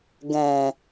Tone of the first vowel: low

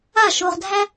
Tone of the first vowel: falling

